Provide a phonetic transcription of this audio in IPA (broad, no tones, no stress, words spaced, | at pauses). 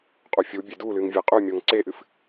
qʼufʲubʲe dulɨŋ vʲeqʼymʲoŋ ǀeʔɨf